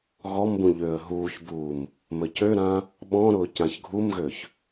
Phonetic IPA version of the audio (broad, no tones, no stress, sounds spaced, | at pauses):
ɣ ɔ m b ũ ʎ ø ə̯ ɦ uː ç b uː m | m ə c ø ɾ ã | ɓ ɔ̃ ɾ ʊː c ã ç ɡʱ u m ɣ ø ç